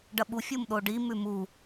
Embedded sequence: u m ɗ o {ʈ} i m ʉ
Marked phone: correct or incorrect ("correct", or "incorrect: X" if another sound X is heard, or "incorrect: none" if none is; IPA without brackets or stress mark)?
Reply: incorrect: ɖ